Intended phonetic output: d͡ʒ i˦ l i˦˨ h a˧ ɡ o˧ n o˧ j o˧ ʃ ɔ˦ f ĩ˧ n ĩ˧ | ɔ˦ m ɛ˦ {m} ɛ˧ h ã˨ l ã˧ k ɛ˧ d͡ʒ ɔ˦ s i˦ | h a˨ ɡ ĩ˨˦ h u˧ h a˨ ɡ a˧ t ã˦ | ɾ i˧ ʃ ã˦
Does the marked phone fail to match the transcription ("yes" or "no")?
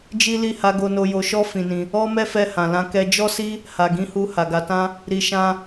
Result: yes